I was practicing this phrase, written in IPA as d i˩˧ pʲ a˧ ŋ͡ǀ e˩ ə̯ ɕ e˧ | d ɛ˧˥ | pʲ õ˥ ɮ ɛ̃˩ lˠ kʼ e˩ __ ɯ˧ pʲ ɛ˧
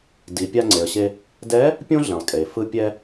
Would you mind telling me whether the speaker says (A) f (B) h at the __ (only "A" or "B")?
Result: A